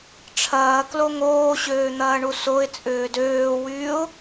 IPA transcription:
ʈ͡ʂʰ ɐː k l o ŋ oː ɕ øː n̪ ɐː ɳ u s o ɪ̯ t͡sʼ ʏː d øː w yː ʊ̯

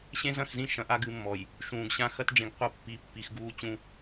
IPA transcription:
ɕ ẽ˦ z ɐ̃˦˨ x z ĩ˦˨ ʃ ɐ̃˨ ʔ a˦ ɡ ɨ˨˦ mː ɔ˨ j | ʃ ũː˨ ɡ ɕ ã˦ x ɐ˦ t ɖ͡ʐ ĩ˨ ɡ qʷ ɐ˦ pː i˨˦ pː i˨ x ɡ uː˦ t͡ɕ ũ˦

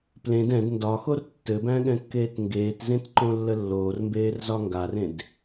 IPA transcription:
p l ẽ d ɛ̃ d n d ɒ x o r tː ɘ b æ̃ ɠ ɛ̃ kː eː t ŋ ɡ eː t z ẽ t ǃ õ lː ə lː oː r m b eː r z ɒ ŋ ɡ a r ẽ d

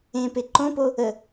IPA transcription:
ẽ p e ǃ õ p o | ə

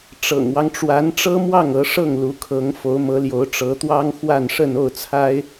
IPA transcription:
ʈ͡ʂ ɤ̰˨˩ ŋ w ɑ˦ ŋ ʈ͡ʂ w a˧˥ n ʈ͡ʂ ɤ˥ m w ɑ˥˩ ŋ ɤ˧˥ ʂ ɤ˥˩ ŋ l u˧˥ kʰ ɤ˧˥ ŋ f o˧˥ ʊ̯ m ɤ˧˥ l j o˧˥ ʊ̯ ʈ͡ʂ ɤ˧˥ t̪ w ɑ˥ ŋ x w a˥˧ n ʂ ə˥˧ n o˥˩ ʊ̯ t͡sʰ a˥ ɪ̯

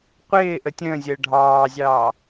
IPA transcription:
qʷ ɪː ʔ ə tʲ ə̃ː zʲ əː ɖʱ ɑː zʲ ɑː

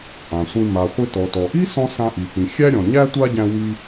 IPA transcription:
ʔ ã˩ sʷ ĩ˧ m a˩ χʷ i˧ t ɔ˩ t ɔ˩ ʔ i˥ s ɔ̃˧ s ã˧ ʔ i˩ p ĩ˩ xʲ æ˥ ɾʲ ɔ̃˩ ɲ æ˥ tʷ a˥ ɟ æ̃˧ w i˧

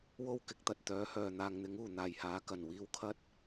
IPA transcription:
w o˥ w k ɪ˨˥ k̚ t̪ ɐ˧ t̚ t̪ œː˨˥ h œː˨ n̪ aː˨ ŋ n̪ ɪ˨˥ ŋ uː˨˩ n̪ aː˨˩ j h aː˨˥ k ɐ˨˩ n w iː˧ w kʰ ɐ˥ t̚

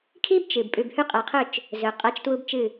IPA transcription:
kʰ i˦ b t͡ʃ ɨ˨ b pʼ ʉ˨ b h ʉ˦ qʼ a˨˦ qʰ ɵ˦˨ t͡ʃ | z ɵ˨ qʼ a˦ t͡ʃ t w u˦ b t͡ʃ ɨ˦˨

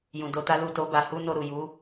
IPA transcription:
j ũ˨ d o˧ t a˦ l u˦˨ t o˧ b a˨ h u˧ n o˧ ɾ u˨ j u˨˦

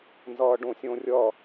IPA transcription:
n z ʌː ɖ õ sʲ õ rʲ ʌ

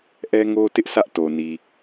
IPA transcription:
ʔ ɛ˦ ŋ o˦ t ɪ˦ ʔ s ä˦ ʔ t o˨ n i˨

